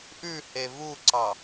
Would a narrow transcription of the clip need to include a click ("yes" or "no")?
yes